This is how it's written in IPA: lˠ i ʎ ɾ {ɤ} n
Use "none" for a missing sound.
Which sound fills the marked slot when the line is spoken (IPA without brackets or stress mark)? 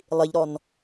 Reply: ɔ